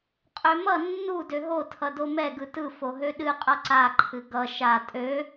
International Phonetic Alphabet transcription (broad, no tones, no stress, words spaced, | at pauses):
qʼømʌ nːu døɦo tʰʌdomɛ ɡɯtɯ foɦøɗɨ qʼʌǀa ǃʰɨɡʌ ʃa tʼø